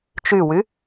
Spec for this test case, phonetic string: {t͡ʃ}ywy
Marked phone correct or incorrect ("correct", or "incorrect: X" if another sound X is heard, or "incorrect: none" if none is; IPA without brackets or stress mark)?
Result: correct